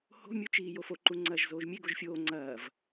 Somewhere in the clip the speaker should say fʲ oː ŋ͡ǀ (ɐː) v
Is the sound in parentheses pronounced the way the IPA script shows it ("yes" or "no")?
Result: yes